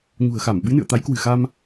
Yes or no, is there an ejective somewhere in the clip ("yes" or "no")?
no